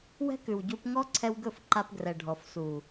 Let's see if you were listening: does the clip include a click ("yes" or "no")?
yes